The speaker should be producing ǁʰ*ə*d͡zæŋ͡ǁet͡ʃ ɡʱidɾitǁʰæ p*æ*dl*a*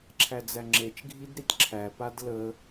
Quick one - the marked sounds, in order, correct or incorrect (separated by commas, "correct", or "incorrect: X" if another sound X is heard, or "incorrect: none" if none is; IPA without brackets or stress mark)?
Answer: incorrect: æ, incorrect: a, incorrect: ə